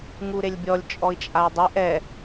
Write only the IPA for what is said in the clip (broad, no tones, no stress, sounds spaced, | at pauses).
ŋ u ɾ e lʲ bʲ ɔ lʲ t͡ʃʼ ɔ i̯ t͡ʃʼ a i̯ dˤ ɪ ʔ ɛ